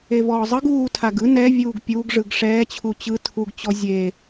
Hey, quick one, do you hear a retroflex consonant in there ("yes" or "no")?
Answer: yes